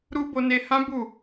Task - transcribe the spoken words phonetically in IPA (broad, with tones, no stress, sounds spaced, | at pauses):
ɾ u˦ b o˧ n e˧ h ã˦ b u˦˨